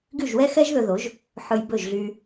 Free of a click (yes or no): yes